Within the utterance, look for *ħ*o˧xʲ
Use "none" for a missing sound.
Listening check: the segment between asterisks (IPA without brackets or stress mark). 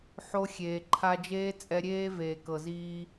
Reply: ħ